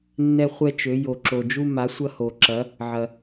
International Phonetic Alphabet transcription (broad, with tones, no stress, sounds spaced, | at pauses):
nː ɛ˧ χʷ ɛ˧ t͡ʃ ø˩˧ j o˩ ǁ o˩ d͡ʒ u˧ m a˩˧ sʷ ɐ˧ h o˩ ǁ ɐ˩˧ | ʕ ɐ˩